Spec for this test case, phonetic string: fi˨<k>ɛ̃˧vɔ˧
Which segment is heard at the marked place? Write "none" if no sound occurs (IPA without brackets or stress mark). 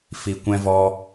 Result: kʷ